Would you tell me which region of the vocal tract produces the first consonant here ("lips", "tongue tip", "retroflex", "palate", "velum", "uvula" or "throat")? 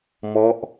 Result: lips